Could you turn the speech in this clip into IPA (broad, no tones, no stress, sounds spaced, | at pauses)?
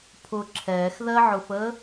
pʰ ʊ ǁʰ ɛː x ð ɜ ʕ ʊ f əː